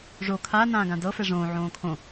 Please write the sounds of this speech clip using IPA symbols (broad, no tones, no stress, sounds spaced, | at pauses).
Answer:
ʐ o kʰ a n ãː ɡ ã d ɤ f ɛ ʐ õː ʕ õː kʰ õ